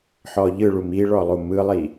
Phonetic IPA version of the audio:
ħɔʎɯɭum iɭɔ lˠumɯlˠi

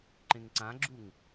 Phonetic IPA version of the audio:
ǃẽŋǀãɡ͡ǁuŋ

